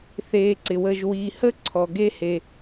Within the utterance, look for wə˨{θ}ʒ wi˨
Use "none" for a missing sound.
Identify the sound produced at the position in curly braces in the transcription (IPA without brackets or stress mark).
none